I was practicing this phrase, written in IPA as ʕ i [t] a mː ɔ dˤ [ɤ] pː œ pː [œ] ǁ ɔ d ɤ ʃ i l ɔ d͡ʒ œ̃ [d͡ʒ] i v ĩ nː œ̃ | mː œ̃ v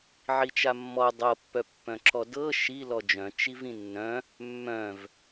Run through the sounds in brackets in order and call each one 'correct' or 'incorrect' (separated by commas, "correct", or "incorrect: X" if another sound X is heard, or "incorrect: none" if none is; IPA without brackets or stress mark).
incorrect: t͡ʃ, correct, incorrect: œ̃, incorrect: t͡ʃ